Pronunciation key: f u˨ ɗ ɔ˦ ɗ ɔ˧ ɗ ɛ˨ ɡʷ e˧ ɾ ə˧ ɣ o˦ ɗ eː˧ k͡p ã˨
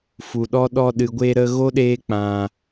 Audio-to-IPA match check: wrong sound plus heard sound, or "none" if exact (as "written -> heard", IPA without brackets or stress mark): ɛ˨ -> ɨ˨